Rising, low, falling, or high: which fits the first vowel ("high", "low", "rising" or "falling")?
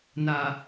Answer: low